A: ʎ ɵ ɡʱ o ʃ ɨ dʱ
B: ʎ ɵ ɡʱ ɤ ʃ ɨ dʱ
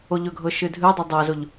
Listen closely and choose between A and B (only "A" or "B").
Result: B